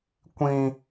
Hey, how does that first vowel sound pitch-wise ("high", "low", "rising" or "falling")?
high